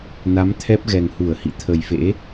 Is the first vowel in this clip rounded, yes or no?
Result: no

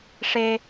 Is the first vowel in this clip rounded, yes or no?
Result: no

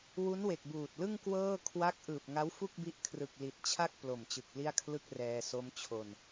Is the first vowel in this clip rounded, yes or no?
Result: yes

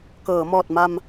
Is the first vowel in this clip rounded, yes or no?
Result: no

